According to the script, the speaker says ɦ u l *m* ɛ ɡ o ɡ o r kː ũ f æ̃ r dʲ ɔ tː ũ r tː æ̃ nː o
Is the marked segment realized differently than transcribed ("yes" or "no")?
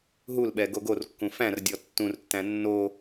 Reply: yes